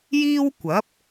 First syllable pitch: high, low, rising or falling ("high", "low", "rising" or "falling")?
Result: high